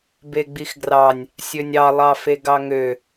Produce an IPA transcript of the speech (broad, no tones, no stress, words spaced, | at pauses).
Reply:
beɡ͡bixɡrɑnʲ | sʲønʲɑ lˠɑfeɡɑŋø